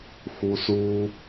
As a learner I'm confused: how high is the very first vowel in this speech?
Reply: high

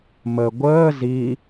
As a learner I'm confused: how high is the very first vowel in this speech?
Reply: mid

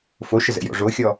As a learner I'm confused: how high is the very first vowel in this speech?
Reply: mid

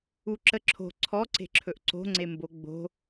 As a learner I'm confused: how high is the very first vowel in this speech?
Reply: high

